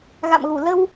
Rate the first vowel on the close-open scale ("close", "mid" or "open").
open